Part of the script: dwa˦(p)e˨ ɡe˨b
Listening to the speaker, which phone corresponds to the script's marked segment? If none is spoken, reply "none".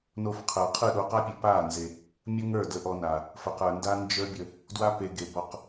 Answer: p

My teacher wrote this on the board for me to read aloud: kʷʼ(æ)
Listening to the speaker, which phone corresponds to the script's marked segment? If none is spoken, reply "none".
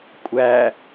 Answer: æ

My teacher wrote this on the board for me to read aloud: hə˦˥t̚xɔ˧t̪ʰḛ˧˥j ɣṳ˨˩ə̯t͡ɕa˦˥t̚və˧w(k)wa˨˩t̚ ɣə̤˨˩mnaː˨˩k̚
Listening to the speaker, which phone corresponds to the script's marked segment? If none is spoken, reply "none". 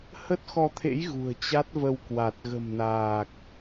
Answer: k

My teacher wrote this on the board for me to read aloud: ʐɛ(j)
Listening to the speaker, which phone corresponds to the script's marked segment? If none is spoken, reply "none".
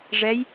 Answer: j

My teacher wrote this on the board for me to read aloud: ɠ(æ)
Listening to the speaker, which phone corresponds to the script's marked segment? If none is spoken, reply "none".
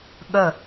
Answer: ə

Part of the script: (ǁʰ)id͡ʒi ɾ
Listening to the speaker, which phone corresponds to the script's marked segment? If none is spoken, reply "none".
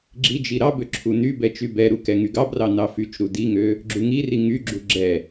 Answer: ɡ͡ǁ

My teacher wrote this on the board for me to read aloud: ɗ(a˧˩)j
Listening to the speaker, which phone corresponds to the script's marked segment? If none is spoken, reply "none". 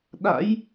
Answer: a̰˧˥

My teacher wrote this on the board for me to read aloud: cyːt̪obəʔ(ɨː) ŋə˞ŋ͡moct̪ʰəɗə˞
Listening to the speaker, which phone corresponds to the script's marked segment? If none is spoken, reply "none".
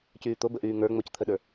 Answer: yː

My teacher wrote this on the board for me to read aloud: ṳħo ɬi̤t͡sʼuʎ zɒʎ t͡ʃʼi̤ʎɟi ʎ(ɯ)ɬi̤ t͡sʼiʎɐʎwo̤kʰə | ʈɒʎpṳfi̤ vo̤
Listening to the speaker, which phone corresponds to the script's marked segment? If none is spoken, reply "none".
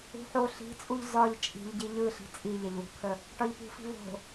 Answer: ɯ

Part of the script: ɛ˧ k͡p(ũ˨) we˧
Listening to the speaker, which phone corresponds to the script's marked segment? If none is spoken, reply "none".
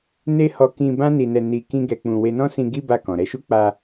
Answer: ũ˧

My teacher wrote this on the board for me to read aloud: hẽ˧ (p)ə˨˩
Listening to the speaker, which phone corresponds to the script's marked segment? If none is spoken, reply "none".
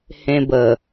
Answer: b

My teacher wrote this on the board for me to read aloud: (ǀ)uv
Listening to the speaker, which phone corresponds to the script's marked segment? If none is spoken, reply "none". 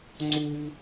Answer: ŋ͡ǀ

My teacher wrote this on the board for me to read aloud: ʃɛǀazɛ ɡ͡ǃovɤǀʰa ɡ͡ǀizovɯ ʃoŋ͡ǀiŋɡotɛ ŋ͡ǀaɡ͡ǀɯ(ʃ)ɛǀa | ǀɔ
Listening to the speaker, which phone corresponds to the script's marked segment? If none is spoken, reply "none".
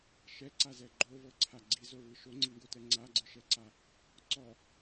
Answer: ʃ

